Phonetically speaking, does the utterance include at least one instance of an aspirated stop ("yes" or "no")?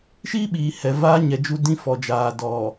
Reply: no